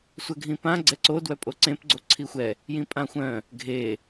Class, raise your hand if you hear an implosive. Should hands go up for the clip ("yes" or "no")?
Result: no